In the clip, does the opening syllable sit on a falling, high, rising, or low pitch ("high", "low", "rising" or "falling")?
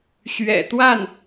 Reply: low